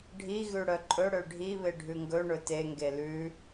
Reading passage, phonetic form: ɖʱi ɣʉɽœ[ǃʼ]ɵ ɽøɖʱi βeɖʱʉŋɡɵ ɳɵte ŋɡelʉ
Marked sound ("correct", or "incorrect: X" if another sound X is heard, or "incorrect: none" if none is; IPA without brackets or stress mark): correct